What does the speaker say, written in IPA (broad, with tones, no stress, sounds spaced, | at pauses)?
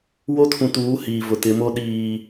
w o˦ tʰ ũ˨ t uː˨˦ h iː˨ v ʊ˨ t ɪ˨˦ m o˦ ɗ iː˨